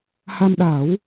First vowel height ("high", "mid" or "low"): low